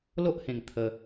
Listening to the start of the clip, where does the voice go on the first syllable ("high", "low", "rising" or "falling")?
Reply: high